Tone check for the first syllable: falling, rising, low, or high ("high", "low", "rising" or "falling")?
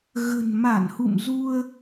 low